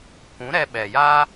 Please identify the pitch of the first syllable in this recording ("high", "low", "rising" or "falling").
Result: rising